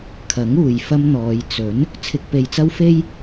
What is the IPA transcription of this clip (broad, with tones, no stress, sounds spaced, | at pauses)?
kʰ ɐ˨˥ ŋ uː˨ j f ɐ˥ m n̪ ɔː˨˧ j t͡s ɵ˨˥ n | t͡sʰ ɪ˧ k̚ p e˧ j t͡s ɐ˥ w f e˥ j